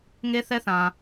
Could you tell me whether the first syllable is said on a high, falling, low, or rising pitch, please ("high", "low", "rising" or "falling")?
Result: high